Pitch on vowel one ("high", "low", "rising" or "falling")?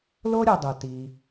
high